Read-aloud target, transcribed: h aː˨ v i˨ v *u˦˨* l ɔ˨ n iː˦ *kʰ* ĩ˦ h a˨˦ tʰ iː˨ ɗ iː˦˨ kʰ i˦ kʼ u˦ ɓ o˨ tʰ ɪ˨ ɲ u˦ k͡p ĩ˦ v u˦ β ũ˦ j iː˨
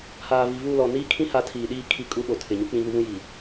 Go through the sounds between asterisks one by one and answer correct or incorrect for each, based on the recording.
correct, correct

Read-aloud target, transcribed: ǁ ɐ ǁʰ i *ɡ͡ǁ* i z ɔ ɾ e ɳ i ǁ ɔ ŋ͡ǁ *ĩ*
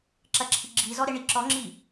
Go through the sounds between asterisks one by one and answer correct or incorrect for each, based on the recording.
correct, incorrect

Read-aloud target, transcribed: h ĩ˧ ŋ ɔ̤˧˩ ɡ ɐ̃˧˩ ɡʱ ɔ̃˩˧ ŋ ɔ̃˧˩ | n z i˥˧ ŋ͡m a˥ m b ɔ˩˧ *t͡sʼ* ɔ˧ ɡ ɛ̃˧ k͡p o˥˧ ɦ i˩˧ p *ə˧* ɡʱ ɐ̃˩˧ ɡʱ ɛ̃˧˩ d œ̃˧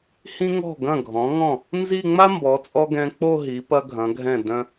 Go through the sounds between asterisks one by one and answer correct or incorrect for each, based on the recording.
correct, incorrect

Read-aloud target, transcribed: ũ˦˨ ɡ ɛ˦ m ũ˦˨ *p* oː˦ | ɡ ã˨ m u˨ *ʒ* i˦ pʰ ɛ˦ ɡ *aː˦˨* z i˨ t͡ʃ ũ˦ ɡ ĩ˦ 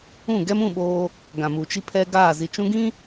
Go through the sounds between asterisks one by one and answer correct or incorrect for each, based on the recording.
incorrect, incorrect, correct

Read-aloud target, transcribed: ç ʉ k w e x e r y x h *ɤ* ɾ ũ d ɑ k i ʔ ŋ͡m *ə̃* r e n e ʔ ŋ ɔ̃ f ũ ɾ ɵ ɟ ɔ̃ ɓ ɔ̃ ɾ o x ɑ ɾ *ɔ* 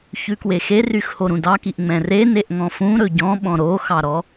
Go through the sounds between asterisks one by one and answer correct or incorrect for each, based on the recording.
incorrect, incorrect, correct

